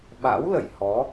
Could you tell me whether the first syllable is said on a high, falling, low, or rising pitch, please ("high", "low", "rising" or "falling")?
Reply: rising